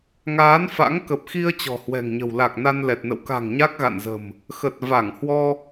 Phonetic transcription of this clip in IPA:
ŋaː˨˦nfa̰˧˥ŋ kə˨˩p̚xi˧ə̯ t͡ɕɔ̤˨˩hwɛ̤˨˩ŋɲə̤˨˩w la˨˩k̚ na˧nlɛ˨˩t̚nə̰˧˨w ka̤˨˩ŋ ɲa˦˥k̚ɣa̰˧˨nzə̤˨˩m | xə˨˩t̚ va˧˩ŋ hwɔ˧

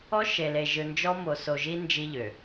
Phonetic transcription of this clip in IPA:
ɔ˦ ʃe˨le˨ ʒɯ˨nd͡ʒɔ˦mo˨ so˨ʒi˦ nd͡ʒi˦ʎʏ˨

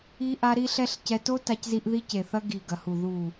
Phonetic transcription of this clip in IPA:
i˦ʔa˦ɾi˦ɬɛ˦ɬ cɛ˧to˦ ta˧czi˧ʔ ði˧ce˨θɐ˧ ɡi˨ɡɐ˨hu˨ ðu˨

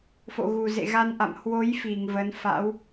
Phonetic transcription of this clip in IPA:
fo̰˧˨ɣu˨˩zḛ˧˨ ɣa˧nʔa̰˧˨m hwo˨˦jfi˧˩ŋ və˨˦n fa̰˧˥w

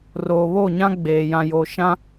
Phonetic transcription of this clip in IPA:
roː˨βo˦˨ɲã˦ ɡ͡beː˨jã˨joː˨ ʃã˦

